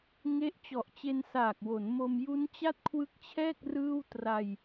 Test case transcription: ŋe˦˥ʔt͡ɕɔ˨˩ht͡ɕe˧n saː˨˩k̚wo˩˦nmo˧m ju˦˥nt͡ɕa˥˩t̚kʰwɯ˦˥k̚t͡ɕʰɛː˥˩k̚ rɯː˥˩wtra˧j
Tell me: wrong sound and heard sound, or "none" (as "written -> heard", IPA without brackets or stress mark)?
h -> ʔ